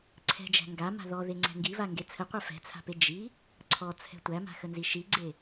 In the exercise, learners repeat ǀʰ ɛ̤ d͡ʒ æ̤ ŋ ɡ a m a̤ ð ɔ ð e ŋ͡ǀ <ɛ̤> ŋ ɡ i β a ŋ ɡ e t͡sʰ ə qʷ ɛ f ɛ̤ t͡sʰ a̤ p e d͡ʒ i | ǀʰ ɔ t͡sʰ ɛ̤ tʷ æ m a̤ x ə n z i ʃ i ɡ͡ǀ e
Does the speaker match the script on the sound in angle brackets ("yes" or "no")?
yes